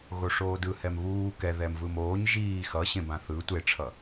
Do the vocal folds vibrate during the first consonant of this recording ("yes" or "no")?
yes